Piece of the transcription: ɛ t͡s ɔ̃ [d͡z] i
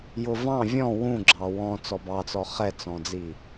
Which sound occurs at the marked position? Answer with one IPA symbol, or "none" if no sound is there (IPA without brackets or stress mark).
d͡z